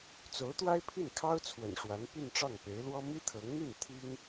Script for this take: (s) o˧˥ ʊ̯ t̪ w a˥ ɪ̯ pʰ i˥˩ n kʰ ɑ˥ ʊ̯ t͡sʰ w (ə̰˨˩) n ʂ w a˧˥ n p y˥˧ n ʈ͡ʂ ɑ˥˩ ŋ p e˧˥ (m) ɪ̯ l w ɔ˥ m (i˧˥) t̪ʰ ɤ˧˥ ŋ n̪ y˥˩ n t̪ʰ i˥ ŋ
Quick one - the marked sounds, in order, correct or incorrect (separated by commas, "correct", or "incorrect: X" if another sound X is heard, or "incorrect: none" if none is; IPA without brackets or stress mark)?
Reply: incorrect: t͡s, correct, incorrect: none, incorrect: i˥